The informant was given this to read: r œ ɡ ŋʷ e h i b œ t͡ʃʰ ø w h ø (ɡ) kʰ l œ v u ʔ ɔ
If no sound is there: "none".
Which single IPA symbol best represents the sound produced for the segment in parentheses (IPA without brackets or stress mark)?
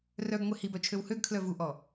ɡ